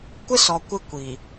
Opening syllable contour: high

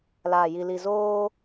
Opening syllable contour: low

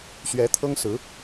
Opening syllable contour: rising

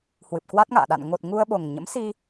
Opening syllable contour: low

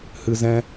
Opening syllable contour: low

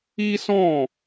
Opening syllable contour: high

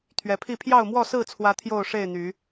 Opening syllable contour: rising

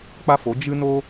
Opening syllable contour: high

